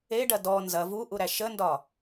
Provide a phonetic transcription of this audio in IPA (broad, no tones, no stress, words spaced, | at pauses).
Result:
eɖɐ dɔ nzɐ vuʔuɾæ ʃəndɒ